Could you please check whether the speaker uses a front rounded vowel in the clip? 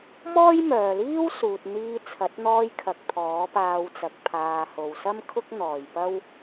yes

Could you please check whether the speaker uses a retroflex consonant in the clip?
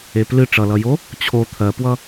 yes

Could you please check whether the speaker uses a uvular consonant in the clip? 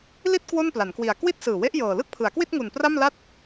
no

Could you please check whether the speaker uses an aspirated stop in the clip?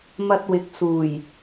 no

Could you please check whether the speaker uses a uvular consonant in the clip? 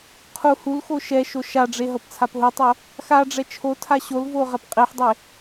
yes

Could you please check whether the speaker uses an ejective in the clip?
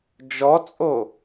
yes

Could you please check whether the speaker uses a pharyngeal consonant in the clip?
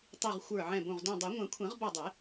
yes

